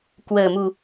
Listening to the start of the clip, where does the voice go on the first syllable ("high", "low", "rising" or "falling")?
low